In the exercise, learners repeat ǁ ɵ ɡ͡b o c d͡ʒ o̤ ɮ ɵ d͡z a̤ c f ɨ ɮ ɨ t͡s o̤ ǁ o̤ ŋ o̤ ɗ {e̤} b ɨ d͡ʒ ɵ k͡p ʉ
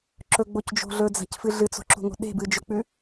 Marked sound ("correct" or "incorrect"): correct